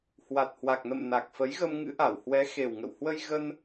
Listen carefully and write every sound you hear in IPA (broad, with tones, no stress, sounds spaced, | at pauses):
h w a˨˩ t̚ h w a˨˩ k̚ n ə̰˧˨ m n a˨˩ k̚ f ə˨˦ j ɣ ə˧ m ŋ ɨ̰˧˥ ʔ a˧˩ w h w ɛ˨˦ x e˨˩ w ŋ ə̰˧˨ w h w ə˧ j ɣ ə˧ n